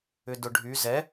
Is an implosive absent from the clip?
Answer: yes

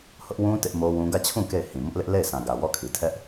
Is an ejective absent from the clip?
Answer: yes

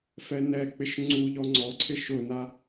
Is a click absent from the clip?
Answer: no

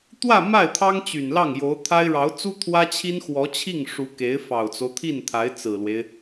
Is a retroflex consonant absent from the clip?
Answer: no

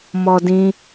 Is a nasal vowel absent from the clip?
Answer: no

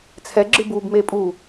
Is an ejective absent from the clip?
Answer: no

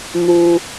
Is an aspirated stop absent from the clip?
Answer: yes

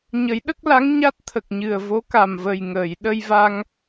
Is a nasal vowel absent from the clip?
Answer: yes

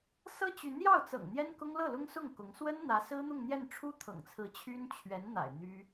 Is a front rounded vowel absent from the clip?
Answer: no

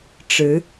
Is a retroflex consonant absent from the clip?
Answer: no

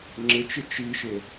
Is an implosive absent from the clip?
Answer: yes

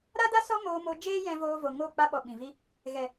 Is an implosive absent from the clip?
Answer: no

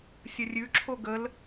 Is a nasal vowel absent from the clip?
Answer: yes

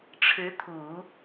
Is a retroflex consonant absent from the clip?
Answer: no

